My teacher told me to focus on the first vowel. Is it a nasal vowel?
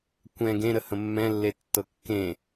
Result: yes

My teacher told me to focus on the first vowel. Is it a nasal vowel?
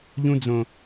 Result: yes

